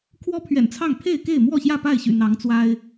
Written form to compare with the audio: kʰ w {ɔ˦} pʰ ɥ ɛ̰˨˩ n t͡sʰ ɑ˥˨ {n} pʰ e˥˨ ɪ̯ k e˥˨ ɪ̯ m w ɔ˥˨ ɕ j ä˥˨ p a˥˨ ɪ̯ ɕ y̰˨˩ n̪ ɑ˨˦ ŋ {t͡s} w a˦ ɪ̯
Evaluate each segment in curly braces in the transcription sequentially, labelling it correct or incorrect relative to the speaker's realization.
correct, incorrect: ŋ, correct

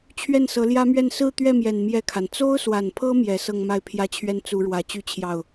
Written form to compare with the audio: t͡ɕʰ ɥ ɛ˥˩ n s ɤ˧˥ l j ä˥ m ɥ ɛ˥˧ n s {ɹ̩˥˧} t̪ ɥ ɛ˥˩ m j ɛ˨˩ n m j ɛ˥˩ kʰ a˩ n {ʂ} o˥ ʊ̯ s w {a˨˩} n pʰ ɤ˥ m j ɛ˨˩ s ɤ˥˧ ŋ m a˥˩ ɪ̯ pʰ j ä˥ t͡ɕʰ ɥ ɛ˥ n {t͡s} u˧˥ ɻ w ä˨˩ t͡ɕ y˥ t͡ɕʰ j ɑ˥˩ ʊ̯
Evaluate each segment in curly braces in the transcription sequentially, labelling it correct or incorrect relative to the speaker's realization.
correct, incorrect: t͡s, correct, correct

